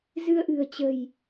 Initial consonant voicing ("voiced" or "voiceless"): voiced